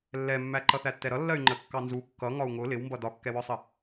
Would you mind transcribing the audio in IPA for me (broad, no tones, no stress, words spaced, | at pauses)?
lːɛmːæ ǃʌθætːɛɾʌ lːɜy̯ŋ͡ǃə kːɑnzu kːʌ ŋɒu̯ŋʊ lɪwmbʌ dɒkːɛwɒsˤə